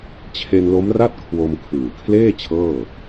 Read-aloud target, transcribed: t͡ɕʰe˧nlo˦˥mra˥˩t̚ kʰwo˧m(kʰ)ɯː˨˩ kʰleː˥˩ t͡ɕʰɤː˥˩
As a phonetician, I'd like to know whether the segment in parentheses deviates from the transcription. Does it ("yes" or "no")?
no